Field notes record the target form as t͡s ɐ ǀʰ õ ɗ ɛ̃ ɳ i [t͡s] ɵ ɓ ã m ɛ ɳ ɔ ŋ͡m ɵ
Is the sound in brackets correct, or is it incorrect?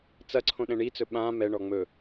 correct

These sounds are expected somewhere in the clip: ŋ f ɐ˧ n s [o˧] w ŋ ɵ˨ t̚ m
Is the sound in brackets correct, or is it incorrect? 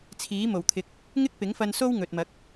incorrect: o˥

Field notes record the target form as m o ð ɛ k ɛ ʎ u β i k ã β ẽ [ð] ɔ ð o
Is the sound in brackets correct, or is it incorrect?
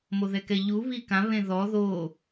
correct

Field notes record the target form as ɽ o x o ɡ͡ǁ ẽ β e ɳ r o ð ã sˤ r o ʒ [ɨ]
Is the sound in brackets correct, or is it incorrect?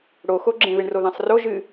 correct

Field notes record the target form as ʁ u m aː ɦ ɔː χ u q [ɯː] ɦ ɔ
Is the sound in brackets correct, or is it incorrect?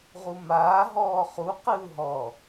correct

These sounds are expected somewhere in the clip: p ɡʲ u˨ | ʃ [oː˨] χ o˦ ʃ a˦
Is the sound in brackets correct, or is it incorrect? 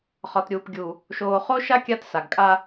correct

